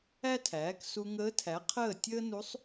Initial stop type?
aspirated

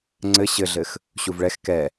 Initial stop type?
click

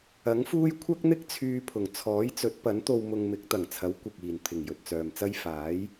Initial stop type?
aspirated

